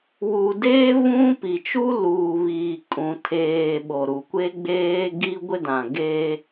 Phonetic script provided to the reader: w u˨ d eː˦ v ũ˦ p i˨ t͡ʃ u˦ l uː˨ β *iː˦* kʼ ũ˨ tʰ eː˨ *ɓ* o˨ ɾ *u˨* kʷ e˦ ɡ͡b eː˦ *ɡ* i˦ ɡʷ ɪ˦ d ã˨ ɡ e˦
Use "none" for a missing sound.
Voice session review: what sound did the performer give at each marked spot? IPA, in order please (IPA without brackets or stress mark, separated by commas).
iː˨, ɓ, u˨, ɡ